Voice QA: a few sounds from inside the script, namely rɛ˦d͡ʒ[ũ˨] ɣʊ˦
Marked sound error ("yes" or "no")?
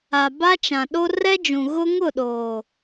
no